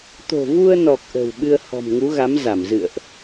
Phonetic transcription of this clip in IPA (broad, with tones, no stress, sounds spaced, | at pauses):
t̪ o̤˨˩ v u˧ ə̯ n ɔ˨˩ k̚ ʔ ə̤˨˩ w ɓ ɨ˧ ə̯ h ɔ̤˨˩ m ŋ u˨˦ ɣ a˨˦ m z a˧˩ m z ɨ̰˧˨ ə̯ ʔ